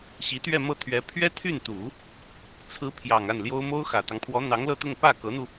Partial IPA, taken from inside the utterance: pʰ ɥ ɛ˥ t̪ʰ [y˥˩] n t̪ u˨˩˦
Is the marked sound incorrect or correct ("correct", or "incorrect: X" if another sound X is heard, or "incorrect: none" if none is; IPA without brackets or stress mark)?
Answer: correct